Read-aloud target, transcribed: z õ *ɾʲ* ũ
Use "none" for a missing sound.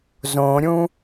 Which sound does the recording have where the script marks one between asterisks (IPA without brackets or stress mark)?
ɾʲ